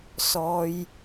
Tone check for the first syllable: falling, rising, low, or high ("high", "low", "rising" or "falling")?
high